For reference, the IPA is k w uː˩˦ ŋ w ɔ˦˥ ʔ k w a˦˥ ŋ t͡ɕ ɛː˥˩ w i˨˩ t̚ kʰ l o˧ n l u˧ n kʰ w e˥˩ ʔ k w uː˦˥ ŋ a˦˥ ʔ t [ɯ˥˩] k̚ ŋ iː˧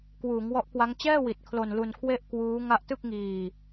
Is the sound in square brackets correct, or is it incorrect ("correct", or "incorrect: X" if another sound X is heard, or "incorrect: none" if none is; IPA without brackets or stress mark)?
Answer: correct